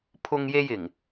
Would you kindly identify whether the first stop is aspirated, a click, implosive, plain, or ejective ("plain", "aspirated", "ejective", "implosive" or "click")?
aspirated